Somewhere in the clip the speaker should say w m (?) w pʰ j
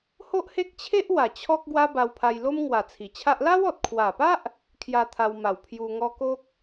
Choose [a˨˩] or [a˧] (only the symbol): a˨˩